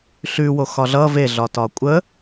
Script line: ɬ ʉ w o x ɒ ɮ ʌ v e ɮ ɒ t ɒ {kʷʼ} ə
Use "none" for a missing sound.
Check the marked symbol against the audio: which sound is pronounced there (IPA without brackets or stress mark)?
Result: kʷʼ